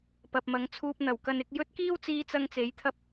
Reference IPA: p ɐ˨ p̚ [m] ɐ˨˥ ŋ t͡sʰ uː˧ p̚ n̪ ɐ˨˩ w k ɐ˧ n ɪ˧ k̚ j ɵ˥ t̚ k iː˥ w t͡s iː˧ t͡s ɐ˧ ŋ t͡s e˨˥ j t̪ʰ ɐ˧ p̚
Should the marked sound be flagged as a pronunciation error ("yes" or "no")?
no